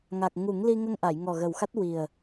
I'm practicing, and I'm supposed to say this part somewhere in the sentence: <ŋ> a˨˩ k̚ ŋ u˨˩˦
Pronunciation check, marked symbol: correct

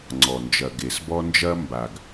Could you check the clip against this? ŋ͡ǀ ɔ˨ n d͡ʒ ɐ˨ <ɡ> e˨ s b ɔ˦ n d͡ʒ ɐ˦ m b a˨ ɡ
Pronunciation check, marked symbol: correct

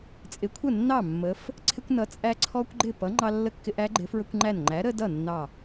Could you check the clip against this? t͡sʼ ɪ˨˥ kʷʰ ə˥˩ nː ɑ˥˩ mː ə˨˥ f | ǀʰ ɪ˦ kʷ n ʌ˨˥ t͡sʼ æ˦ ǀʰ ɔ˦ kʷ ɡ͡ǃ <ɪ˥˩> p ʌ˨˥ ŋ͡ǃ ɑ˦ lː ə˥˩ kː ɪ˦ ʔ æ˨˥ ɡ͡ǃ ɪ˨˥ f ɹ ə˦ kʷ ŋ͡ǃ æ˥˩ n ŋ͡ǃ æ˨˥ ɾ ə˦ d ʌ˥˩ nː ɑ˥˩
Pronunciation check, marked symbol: correct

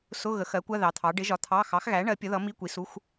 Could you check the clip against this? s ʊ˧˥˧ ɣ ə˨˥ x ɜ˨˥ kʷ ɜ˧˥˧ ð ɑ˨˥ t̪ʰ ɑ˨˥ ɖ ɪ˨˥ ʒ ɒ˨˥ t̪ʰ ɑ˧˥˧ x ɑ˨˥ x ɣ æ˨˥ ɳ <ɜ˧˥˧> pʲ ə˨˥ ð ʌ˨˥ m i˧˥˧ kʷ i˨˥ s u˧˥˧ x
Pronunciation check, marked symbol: incorrect: ɜ˨˥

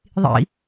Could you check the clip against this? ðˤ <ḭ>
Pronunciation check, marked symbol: correct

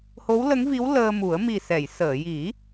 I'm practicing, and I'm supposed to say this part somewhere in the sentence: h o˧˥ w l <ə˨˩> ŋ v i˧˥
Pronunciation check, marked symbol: incorrect: ə˧˥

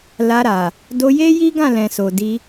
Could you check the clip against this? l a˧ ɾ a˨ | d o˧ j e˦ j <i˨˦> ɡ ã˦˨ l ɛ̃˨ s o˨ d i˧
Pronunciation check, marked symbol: incorrect: i˦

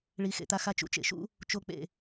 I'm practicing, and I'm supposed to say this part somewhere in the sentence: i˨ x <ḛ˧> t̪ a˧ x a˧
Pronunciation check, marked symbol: incorrect: ḛ˨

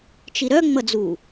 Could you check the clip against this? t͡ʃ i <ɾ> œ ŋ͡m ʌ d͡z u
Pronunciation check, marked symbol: correct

